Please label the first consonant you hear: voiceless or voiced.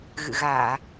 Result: voiced